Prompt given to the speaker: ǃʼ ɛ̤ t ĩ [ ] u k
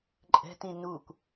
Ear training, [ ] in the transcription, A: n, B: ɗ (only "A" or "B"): A